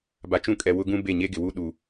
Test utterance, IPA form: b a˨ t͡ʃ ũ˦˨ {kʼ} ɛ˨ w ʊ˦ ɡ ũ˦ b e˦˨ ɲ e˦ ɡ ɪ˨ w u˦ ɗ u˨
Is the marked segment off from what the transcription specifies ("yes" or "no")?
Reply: no